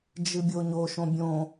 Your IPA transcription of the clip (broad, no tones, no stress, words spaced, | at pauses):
d͡ʒɨbʲoɲo ʃõbʲõ